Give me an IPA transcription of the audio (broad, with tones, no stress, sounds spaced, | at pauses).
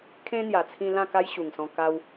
kʰ ẽ˦ n̪ j a˨˩ t͡sʰ ĩ˧ l ã˥˧ k a˦ j ɕ u˨˩ ŋ s ɔ̃˧ k a˧ w